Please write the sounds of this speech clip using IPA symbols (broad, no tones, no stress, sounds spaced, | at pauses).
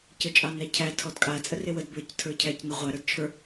c ə t͡ʃʼ ɑ n æ cʰ æ tʰ ɔ d kʼ a t͡sʼ ə r e w ə d b ə˞ c tʰ ə˞ cʰ æ c n ə ʁʷ æ ɾ ə˞ d t͡ʃʰ ə˞